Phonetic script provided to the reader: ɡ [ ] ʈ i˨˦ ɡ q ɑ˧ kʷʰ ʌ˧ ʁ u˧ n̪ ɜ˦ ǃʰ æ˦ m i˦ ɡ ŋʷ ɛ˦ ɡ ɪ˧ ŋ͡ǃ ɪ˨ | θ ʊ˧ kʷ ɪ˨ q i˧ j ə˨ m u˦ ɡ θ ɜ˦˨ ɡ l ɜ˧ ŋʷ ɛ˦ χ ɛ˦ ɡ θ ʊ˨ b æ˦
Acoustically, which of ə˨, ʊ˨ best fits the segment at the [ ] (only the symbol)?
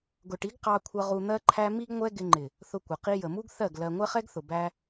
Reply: ʊ˨